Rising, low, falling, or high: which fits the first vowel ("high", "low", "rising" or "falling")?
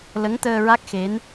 rising